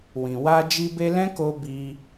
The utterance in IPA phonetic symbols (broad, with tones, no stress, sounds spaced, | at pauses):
w ĩ˨ w a˧ d͡ʒ i˧ b e˧ l ɛ̃˦ k o˧ b i˧